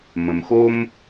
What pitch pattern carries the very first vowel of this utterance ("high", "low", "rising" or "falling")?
low